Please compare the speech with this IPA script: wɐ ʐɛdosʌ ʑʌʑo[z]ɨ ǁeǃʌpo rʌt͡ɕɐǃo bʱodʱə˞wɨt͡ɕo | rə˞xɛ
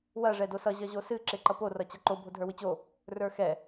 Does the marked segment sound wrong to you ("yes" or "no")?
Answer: yes